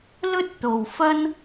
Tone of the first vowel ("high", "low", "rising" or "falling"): high